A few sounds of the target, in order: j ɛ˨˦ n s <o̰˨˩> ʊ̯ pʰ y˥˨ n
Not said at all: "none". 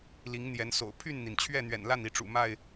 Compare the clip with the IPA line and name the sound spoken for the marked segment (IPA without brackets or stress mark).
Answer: o̰˨˩